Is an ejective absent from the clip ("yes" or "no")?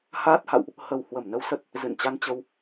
yes